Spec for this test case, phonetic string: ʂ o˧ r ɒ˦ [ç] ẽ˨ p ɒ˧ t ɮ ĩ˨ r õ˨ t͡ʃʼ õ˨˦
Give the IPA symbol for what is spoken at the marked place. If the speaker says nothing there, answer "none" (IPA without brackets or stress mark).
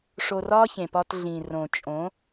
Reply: ç